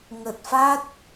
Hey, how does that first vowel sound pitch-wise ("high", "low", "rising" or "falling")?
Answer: low